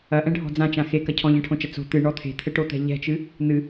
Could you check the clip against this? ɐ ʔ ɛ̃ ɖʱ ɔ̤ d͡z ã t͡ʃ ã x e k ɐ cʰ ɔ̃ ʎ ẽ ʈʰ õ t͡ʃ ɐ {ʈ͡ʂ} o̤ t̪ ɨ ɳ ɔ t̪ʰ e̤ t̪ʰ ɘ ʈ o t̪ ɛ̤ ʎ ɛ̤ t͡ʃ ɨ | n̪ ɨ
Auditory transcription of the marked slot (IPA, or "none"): t͡s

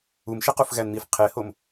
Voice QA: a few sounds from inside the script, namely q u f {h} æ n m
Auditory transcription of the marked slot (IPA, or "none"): ɣ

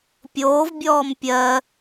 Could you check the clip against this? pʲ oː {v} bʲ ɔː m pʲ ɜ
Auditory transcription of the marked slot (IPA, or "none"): v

